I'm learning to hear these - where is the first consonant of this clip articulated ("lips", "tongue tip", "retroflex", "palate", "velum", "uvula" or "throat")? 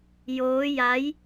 palate